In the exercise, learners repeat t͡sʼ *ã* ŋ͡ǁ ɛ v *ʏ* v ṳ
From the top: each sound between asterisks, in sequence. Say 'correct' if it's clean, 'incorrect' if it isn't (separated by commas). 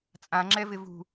correct, incorrect